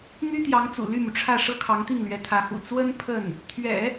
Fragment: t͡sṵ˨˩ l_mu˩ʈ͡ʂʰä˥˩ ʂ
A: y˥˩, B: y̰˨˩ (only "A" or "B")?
A